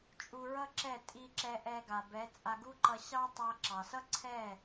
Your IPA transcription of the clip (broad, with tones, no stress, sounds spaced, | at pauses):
t͡ʃʼ u˧ ɹ ʌ˦ ǁ ɛ˦˨ tʼ i˧ ǁ ɛ˧ ʔ ɛ˧ ɡ a˨ b ɛ˨˦ t͡sʼ a˧ ɡ u˦ ǃ ʌ˧ ɕ ɑ˦ tˤ a˧ ǁ ɑ˨ s ʌ˦ ǀʰ ɛ˦˨